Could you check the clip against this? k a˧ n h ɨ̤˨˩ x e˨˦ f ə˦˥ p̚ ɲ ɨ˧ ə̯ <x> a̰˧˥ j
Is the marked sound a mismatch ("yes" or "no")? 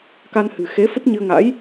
yes